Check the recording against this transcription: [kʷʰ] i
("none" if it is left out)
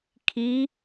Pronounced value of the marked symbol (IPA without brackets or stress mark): kʰ